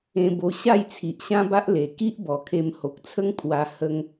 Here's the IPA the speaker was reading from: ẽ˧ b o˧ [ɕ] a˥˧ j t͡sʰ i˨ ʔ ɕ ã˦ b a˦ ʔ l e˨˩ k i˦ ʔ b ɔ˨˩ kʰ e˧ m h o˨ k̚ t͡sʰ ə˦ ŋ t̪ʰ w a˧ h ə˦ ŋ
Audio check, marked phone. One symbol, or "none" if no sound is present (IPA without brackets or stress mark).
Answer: ɕ